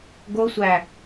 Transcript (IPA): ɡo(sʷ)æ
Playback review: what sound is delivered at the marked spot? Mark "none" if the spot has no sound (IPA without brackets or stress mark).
sʷ